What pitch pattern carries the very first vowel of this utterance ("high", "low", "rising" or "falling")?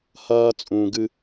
high